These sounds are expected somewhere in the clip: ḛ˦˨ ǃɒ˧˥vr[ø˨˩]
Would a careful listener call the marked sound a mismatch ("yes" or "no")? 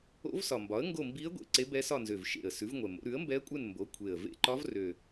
no